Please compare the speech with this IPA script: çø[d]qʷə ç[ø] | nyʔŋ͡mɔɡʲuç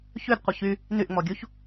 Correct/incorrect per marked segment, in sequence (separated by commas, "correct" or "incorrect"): correct, incorrect